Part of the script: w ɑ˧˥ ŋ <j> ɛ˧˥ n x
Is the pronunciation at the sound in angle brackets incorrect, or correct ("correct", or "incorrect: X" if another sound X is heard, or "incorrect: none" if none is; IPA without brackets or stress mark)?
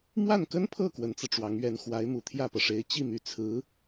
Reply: incorrect: ɥ